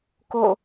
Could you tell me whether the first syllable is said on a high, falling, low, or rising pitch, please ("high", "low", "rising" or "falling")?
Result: falling